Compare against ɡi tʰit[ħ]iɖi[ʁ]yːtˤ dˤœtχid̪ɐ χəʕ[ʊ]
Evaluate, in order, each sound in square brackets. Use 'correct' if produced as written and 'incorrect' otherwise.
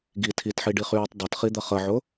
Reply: correct, incorrect, correct

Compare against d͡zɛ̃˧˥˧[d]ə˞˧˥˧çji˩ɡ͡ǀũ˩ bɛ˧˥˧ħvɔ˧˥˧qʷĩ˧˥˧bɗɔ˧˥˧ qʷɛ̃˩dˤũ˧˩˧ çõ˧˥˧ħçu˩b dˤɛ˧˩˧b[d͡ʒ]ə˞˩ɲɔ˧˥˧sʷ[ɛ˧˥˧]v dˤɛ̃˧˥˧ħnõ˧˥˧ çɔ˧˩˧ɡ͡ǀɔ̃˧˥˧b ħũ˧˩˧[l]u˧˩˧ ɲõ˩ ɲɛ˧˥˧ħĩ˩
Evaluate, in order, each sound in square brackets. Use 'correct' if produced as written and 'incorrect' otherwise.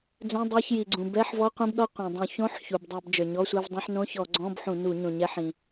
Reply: incorrect, correct, correct, incorrect

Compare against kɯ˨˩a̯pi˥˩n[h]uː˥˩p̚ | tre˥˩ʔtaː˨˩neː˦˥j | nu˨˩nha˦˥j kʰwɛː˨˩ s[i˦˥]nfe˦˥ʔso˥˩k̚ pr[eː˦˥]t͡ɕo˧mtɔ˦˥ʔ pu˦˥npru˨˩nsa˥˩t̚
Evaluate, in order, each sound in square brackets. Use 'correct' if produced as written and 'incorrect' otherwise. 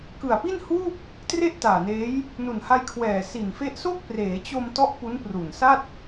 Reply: correct, incorrect, incorrect

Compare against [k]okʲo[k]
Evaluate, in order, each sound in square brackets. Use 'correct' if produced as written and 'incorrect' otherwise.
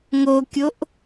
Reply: incorrect, incorrect

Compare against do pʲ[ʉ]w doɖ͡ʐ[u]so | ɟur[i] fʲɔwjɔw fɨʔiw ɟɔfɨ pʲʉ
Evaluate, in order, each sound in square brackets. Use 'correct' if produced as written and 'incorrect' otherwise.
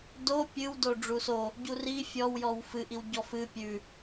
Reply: incorrect, correct, correct

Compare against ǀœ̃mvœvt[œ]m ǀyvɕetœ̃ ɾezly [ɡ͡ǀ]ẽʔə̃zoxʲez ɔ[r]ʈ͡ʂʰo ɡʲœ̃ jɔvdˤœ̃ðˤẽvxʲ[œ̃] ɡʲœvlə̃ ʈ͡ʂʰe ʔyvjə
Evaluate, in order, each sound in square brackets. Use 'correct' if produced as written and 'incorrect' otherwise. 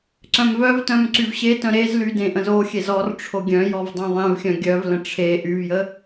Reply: incorrect, incorrect, correct, correct

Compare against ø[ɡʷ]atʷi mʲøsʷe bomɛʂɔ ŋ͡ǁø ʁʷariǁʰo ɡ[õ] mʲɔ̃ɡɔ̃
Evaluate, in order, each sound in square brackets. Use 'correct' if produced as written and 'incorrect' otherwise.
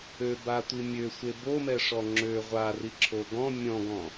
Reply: incorrect, incorrect

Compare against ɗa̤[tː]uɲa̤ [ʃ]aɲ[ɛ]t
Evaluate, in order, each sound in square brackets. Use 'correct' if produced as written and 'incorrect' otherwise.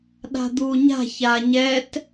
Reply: incorrect, incorrect, correct

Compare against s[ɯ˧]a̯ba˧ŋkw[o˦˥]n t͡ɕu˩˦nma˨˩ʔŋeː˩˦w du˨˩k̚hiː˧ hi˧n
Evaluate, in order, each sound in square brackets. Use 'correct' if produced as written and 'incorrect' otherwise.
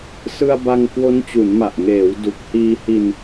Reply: correct, correct

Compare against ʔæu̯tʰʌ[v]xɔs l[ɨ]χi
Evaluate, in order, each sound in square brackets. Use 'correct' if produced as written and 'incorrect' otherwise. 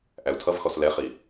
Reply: correct, incorrect

